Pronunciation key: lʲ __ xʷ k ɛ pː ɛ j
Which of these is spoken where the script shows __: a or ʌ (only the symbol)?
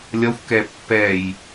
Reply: ʌ